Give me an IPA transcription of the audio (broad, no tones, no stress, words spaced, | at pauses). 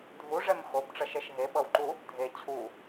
dʱuʐɛm xobʈ͡ʂʌʃɛʃ ɦeɓʌwǃu | dʱe t͡ɕʰu